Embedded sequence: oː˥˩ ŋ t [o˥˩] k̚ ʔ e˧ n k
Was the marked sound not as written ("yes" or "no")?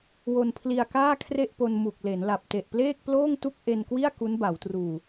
yes